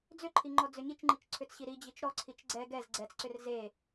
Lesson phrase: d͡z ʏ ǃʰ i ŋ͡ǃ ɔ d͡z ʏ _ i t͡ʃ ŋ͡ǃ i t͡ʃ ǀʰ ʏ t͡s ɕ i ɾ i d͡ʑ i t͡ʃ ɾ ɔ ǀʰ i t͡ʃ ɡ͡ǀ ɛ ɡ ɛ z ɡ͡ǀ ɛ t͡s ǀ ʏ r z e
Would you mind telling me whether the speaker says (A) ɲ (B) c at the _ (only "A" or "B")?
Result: A